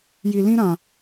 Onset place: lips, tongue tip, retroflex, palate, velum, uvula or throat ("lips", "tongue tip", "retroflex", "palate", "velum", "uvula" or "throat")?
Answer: palate